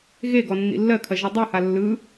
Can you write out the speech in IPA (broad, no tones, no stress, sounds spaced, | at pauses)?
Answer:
ɣ e ɡ ɔ nː ḭ lː ɜ kʰ ɐ ʒ i dˤ ɯ h a lː ɯ